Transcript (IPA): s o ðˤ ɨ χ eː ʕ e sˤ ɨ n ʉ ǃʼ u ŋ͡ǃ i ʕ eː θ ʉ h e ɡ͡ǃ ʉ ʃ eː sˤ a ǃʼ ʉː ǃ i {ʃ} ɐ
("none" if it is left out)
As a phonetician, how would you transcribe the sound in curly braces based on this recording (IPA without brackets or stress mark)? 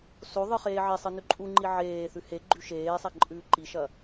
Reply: ʃ